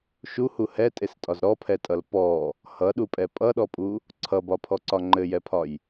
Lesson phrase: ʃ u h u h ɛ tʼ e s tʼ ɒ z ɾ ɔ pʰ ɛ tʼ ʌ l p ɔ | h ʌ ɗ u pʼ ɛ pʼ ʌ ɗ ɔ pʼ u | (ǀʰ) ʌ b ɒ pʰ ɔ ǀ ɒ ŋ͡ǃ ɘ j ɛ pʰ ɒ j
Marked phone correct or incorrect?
correct